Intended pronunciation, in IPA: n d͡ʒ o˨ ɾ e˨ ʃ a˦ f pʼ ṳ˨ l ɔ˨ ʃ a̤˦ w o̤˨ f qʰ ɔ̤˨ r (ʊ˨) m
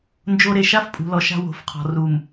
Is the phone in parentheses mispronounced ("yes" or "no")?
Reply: yes